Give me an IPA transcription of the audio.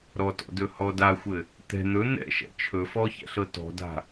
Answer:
ɾ ɔ t ɔ̰ d ɵ h ɔ d a xʷ ɘ | t̪ ɛ̤ n̪ ɵ n̪ ɛ̰ ʃ ɛ̰ t͡ʃʰ ɵ f ɔ ç ɛ̰ ɬ ɤ t ɔ̤ d a̤

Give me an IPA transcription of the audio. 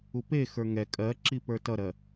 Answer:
u p e x ə˞ ŋ ɛ kʼ ɜ ǁ i p ə˞ t ʌ ɾ ɜ

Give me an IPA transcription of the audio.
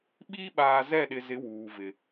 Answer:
ɓ iː˦ ɓ aː˨ z ɛ˦˨ ɗ ɪ˨ z ɪ˨˦ w uː˨ v ɪ˨

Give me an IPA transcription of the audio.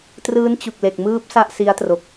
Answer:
t r ɯː˦˥ n t͡ɕ u˨˩ k̚ l e˨˩ k̚ m ɯː˦˥ p̚ s a˥˩ ʔ s i˦˥ a̯ t r o˨˩ k̚

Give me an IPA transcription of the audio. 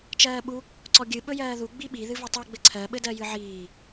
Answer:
t͡ʃ ɜː ɓ u | ǀ ɔ ɡʲ ɨ ɓ ɵ j ɜː ð u ɡ͡b i ɓ i ð ɨ v ɵ tˤ u ɡ͡b ɘ ǀʰ ɜ ɓ ɘ d ɜ j ɨ ʕ iː

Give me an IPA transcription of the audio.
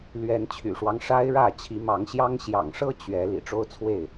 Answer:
l ɥ ɛ˨˦ n t͡ɕʰ y̰˨˩ ʂ w ɑ˦ ŋ ʂ a˦ ɪ̯ ɻ ä˥˨ t͡ɕʰ i˨˦ m ɑ˨˦ ŋ ɕ j ɑ˦ ŋ ɕ j ɑ̰˨˩ ŋ ʂ ɤ˦ t͡ɕ ɥ ɛ˨˦ l ḭ˨˩ ʈ͡ʂ o˦ ʊ̯ t͡sʰ w e˥˨ ɪ̯

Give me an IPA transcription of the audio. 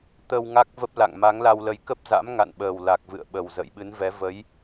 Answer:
t̪ ə˧ w ŋ a˦˥ k̚ v ə˦˥ p̚ l a̰˧˨ ŋ m a˨˦ ŋ l a˧ w l ə˨˦ j k ə˦˥ p̚ z a̰˧˥ m ŋ a̰˧˨ n ɓ əː˨˩ w l a˨˩ k̚ v ɨ̰˧˨ ə̯ ɓ ə˨˩ w z ə̰ː˧˨ j ɓ ɨ˨˦ n v ɛ˨˦ v ə˨˦ j

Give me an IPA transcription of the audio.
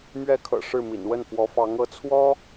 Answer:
m ɥ ɛ˥ kʰ ɤ̰˨˩ ʂ ɻ̩˥˩ m ḭ˨˩ n w ə˥˩ n f w ɔ˧˥ f ɑ˧˥ ŋ ɤ˧˥ t͡sʰ w ɔ˥

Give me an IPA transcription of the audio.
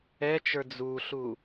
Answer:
ɛ t͡ʃ ə˞ d͡z u ɬ u

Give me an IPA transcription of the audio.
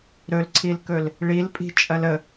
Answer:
ɾ ɵ l ǀʰ i l k ɵ l | ɭ i l pʼ i̤ t͡ʃʼ ɐ l ə

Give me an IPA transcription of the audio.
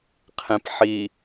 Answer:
qʰ ẽ p ħ i

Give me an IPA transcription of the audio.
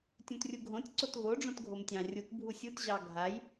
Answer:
tʲ ũ t rʲ u ɡʱ õ tʲ ǀ o t v o ɖ͡ʐ õ t ɡʱ o m tʲ ɑ̃ rʲ u t bʱ u sʲ u t ʑ ɑ ɡʱ a j

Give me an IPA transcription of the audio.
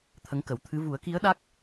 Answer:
t̪ʰ ə˧˥ ŋ k ə˨˩˦ w t̪ʰ ɨ˧˥ v u˨˩˦ ə̯ k i˧˥ ə̯ ɗ a˦˥ k̚

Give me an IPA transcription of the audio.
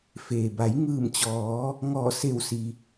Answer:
f eː˩ b a˩˧ j ŋ ɯː˧˩ m t͡ɕ ɔː˩˧ | ŋ ɔː˧˩ s e˧˩ w s i˩

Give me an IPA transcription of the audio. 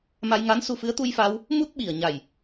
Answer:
m a˧ j ŋ a˧˥ n s u˧ f ɨ˧˥ ə̯ t̪ u˧ j f a˧ w | m u˦˥ t̚ ɓ i˨˩ ə̯ ɲ a˨˩ j

